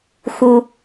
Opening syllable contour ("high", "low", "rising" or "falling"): low